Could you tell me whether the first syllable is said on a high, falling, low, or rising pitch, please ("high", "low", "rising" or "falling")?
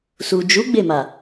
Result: low